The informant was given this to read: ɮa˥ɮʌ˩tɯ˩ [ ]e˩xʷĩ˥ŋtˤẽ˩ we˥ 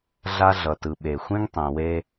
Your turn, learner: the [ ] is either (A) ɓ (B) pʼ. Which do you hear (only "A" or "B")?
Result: A